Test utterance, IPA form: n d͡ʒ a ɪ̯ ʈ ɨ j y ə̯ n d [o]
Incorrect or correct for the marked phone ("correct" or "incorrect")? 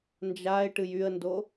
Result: correct